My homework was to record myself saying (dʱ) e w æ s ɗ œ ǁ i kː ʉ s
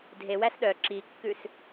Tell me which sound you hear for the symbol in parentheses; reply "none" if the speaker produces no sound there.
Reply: dʱ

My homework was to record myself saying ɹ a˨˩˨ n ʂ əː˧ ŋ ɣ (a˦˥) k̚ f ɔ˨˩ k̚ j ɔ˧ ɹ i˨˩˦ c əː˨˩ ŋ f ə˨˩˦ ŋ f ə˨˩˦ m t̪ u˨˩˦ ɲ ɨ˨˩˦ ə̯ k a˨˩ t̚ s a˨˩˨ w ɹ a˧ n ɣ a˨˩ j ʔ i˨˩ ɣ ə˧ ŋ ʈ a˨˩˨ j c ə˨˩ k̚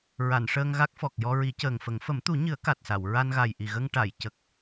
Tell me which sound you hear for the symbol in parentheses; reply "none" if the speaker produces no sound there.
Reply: a˦˥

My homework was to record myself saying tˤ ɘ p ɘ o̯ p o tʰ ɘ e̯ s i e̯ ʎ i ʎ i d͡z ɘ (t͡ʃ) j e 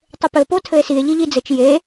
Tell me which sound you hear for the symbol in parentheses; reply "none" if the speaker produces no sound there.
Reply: t͡ʃ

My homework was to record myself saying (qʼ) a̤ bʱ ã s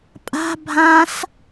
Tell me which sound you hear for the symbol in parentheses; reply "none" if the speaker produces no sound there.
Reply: pʼ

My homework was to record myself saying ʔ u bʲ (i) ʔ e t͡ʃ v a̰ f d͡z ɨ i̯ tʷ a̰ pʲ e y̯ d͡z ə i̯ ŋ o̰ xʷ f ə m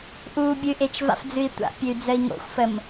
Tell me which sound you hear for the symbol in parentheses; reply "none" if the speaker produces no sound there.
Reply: ɨ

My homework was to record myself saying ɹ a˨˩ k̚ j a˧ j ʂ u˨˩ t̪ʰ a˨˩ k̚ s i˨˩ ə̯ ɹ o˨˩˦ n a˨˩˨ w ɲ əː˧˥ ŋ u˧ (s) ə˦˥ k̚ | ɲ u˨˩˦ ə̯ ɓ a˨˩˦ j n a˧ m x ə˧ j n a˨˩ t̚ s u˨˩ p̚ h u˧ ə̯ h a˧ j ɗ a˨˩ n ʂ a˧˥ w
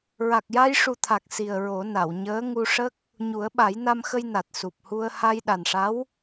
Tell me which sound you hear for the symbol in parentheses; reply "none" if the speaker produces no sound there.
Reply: ʂ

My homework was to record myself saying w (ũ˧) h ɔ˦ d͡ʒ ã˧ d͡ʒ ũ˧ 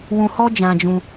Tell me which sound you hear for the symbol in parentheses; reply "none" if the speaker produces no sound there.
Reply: ũ˧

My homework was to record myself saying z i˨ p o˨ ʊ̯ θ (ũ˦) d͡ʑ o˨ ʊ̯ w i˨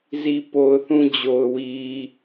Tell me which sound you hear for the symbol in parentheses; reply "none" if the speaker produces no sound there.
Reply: ũ˦˨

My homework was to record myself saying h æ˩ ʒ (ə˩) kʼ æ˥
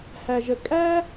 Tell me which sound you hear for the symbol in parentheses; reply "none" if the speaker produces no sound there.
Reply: ə˩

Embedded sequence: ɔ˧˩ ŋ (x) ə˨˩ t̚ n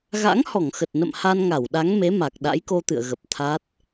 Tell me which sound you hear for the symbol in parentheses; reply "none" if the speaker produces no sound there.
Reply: x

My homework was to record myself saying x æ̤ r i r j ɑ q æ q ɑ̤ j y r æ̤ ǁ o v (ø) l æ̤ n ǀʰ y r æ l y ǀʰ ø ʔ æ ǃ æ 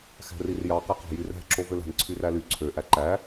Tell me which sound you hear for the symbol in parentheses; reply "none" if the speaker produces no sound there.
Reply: ø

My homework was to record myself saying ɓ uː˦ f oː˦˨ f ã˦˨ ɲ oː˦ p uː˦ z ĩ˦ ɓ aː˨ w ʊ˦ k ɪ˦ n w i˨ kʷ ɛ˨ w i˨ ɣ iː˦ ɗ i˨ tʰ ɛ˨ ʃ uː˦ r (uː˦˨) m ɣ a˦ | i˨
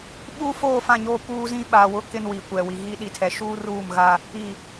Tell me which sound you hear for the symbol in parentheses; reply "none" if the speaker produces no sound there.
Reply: uː˦˨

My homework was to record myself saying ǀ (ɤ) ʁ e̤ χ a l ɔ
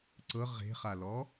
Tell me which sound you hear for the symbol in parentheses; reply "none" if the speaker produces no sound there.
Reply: ɤ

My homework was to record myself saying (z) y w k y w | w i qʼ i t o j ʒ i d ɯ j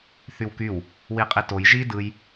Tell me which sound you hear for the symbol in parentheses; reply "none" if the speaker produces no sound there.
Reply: θ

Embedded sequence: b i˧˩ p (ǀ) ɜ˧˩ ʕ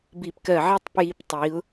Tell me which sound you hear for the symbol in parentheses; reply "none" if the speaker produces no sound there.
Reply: k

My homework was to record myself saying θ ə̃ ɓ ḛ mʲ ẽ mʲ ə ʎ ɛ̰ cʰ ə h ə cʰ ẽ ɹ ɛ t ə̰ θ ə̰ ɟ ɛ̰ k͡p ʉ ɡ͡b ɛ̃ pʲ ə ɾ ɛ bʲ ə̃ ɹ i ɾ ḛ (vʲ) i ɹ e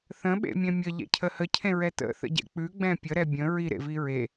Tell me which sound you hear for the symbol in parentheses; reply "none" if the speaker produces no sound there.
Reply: v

